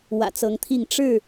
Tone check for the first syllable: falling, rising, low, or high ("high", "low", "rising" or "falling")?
low